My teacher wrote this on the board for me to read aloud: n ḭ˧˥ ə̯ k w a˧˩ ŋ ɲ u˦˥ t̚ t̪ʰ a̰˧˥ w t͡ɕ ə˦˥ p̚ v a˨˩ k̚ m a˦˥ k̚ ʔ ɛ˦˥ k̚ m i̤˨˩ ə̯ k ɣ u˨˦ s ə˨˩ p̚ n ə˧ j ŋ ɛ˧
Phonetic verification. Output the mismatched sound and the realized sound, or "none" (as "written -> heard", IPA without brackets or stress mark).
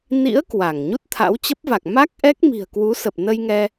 ɣ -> w